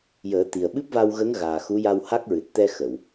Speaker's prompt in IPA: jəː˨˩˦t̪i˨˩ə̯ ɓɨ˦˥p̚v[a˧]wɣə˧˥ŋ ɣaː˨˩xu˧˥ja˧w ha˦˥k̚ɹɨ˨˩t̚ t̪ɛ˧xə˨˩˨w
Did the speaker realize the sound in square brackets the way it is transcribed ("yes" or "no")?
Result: yes